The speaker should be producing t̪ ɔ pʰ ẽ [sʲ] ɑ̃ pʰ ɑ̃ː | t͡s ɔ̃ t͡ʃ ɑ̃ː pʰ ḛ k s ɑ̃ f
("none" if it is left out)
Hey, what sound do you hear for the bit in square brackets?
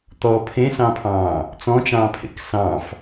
s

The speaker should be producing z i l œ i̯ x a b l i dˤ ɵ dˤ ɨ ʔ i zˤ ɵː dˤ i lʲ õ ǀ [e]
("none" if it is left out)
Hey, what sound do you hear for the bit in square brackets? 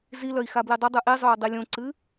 ɨ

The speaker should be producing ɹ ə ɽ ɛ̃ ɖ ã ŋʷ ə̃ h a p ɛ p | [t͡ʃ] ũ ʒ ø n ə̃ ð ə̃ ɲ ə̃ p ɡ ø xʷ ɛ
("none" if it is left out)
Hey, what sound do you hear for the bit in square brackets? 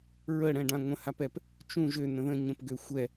t͡ʃ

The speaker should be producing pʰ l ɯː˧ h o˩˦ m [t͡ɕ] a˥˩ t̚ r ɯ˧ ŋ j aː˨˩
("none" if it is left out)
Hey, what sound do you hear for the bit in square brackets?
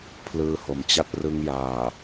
t͡ɕ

